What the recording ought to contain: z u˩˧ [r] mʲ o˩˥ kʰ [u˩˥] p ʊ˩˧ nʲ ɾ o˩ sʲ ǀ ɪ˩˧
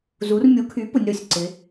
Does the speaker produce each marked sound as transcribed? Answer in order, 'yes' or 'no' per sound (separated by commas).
yes, no